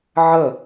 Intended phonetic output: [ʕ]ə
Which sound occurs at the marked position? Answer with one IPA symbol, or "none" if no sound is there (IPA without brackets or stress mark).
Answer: ʕ